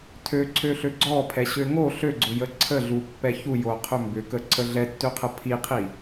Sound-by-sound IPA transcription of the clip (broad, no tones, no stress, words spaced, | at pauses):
tʰøǀʰøɬø ɡ͡ǀɔpʰɛɕø ŋo ɬøɡ͡ǀʊjə ǀʰəɮupːɛ çujoqʰʏ mbʏkəǀʰə ɮɛtːøqʰə pʰiqʰi